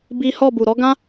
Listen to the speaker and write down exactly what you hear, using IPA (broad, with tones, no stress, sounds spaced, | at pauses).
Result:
b i˦ h ɔ˦˨ b u˨ ɾ ɔ˨˦ ɡ ã˦